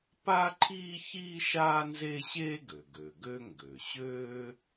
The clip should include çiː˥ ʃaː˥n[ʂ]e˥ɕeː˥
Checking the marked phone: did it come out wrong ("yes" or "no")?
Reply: yes